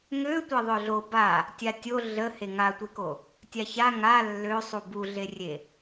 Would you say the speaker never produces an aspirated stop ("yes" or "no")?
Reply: yes